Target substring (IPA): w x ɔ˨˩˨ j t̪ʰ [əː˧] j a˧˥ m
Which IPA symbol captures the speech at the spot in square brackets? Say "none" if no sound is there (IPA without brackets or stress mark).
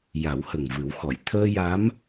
əː˧